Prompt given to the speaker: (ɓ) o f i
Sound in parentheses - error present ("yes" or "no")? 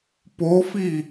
yes